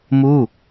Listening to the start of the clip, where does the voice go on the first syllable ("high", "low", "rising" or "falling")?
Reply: falling